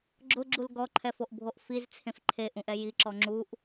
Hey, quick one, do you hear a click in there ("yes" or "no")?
yes